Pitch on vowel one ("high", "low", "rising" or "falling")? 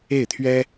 falling